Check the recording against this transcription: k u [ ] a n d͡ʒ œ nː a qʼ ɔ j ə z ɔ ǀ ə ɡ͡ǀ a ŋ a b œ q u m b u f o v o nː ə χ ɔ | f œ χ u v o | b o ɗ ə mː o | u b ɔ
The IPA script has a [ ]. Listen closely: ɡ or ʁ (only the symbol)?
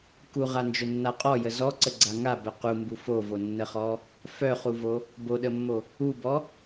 ʁ